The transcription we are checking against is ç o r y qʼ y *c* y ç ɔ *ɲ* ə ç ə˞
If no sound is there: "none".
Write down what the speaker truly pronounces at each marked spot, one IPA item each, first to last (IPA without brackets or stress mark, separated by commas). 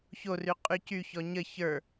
c, ɲ